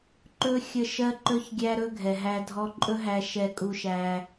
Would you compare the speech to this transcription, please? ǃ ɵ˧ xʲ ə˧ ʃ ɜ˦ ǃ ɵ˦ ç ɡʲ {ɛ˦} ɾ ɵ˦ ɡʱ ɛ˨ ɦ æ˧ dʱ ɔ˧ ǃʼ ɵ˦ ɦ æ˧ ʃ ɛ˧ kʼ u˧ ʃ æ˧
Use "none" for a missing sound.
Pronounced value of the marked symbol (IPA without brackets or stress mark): æ˦